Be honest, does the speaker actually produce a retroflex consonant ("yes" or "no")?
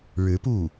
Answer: yes